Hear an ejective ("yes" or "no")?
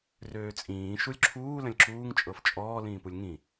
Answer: yes